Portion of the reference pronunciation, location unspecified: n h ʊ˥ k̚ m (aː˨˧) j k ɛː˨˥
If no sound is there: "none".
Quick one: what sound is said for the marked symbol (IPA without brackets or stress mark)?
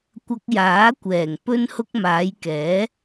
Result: aː˨˧